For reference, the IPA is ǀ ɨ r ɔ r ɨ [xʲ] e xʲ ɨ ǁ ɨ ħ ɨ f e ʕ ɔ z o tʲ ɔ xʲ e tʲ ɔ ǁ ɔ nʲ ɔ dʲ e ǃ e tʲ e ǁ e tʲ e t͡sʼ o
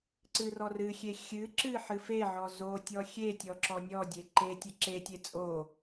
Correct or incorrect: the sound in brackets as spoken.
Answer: correct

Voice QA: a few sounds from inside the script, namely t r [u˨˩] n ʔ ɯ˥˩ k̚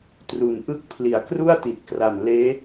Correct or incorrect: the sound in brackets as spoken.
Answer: correct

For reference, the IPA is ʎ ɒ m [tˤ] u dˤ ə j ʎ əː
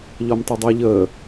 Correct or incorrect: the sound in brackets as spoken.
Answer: correct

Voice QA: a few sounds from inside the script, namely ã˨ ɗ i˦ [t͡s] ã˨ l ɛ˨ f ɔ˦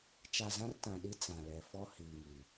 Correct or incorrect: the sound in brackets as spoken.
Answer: correct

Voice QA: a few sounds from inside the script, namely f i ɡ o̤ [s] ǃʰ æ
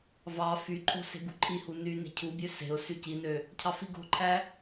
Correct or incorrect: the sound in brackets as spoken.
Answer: incorrect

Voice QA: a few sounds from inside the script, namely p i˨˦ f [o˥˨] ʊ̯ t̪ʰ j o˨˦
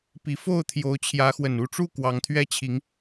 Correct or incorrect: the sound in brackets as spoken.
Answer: correct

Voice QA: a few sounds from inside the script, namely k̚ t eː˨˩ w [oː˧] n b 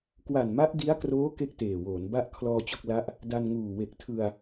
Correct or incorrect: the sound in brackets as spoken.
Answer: incorrect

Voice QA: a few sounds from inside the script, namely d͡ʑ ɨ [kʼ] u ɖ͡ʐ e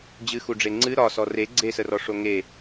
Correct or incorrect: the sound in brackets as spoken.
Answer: incorrect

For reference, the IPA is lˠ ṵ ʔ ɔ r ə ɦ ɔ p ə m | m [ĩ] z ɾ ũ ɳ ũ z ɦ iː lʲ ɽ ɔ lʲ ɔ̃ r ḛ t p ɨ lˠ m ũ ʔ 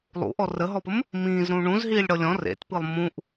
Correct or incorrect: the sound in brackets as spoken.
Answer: incorrect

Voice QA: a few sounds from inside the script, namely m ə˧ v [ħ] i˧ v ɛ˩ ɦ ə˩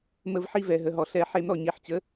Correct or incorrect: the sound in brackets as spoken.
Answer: correct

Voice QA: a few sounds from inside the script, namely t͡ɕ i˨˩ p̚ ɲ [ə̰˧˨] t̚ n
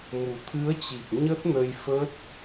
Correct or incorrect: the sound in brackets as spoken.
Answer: incorrect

